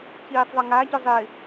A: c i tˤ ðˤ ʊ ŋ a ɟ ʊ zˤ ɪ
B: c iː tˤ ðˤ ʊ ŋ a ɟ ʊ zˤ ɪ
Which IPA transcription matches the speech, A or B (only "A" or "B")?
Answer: B